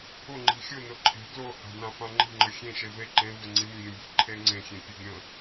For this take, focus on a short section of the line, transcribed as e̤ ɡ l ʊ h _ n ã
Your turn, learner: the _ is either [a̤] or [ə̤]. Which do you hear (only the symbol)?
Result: a̤